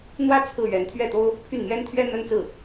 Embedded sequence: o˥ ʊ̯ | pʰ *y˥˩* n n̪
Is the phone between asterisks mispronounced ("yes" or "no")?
no